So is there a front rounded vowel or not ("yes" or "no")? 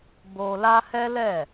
no